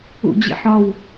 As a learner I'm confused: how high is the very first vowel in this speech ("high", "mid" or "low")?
high